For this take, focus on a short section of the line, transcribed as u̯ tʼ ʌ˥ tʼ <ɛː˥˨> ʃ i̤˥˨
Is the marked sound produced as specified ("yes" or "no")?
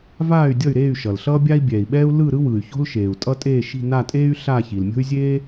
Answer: no